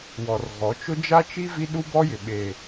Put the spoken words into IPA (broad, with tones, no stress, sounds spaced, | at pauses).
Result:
w ɔ˨ r ɣ ɔ˨˦ t͡ʃ ʊ˦ d͡ʒ a˦ t͡ʃ i˦ v i˦ ɗ u˦ b ɔ˦ j ɪ˨ ɓ eː˨